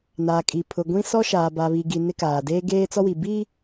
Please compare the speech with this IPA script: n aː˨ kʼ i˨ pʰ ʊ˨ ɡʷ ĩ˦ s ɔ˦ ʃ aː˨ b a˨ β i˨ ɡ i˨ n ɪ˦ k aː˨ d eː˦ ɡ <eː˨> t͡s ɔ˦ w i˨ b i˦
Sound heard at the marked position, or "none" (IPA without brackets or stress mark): eː˦